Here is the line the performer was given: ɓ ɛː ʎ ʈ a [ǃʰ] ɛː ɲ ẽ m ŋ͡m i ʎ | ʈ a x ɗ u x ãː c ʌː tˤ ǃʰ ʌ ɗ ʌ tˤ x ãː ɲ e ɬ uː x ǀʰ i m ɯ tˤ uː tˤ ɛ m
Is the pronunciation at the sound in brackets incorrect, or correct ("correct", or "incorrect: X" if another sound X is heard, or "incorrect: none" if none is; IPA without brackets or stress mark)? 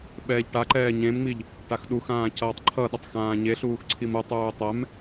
incorrect: ǃ